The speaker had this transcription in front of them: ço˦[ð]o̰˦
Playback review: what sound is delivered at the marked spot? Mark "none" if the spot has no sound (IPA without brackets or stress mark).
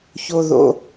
ð